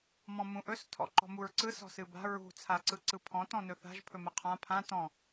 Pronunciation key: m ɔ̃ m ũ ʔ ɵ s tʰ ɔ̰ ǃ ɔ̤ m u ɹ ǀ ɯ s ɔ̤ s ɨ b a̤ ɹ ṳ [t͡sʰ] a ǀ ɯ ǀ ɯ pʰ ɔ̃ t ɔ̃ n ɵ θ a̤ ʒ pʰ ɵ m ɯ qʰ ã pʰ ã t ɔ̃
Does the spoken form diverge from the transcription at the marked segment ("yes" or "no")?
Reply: no